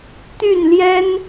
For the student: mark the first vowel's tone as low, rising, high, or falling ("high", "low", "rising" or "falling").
falling